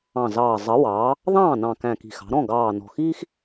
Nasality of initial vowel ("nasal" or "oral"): nasal